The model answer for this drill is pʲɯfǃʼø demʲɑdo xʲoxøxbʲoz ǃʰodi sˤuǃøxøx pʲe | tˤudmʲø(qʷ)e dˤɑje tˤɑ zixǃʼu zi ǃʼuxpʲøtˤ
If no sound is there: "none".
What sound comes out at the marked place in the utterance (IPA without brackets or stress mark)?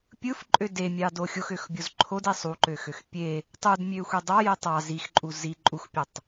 xʷ